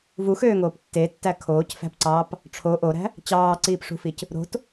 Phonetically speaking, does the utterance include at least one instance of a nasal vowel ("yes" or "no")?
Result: no